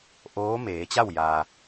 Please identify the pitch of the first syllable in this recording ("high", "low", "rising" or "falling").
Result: rising